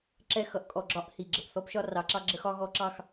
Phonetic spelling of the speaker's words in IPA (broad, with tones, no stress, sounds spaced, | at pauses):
ǁ ɛ˦˨ x ʌ˦ ʔ kʼ ɔ˨ ɡ͡ǁ ɒ˦ ʔ h i˨ ɡ͡ǁ ə˨ p θ ɔ˦ p ʃ ɒ˦ r ɑ˨˦ ǁ ɑ˦ ɡ͡ǁ ə˦ x ɒ˦ ɣ ɔ˦ ǁ ɑ˦ x